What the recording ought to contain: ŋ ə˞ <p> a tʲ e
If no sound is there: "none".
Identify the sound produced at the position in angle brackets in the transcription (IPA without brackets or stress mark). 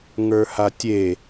h